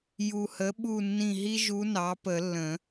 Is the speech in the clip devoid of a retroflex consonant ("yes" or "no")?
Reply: yes